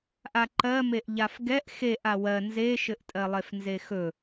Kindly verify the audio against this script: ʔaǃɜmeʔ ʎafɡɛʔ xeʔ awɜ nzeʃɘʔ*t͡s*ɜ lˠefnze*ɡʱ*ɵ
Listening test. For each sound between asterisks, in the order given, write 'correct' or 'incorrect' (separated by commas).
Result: incorrect, incorrect